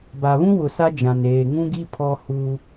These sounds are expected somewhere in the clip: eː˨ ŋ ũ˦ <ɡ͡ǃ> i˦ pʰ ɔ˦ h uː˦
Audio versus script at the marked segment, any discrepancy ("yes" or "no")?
yes